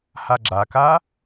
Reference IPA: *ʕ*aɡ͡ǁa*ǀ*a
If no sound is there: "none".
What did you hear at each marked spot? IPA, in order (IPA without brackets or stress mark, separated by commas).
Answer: h, k